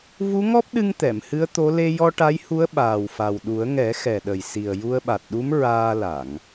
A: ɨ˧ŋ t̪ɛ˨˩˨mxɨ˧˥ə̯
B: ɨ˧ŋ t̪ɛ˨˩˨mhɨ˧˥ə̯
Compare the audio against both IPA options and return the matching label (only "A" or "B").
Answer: B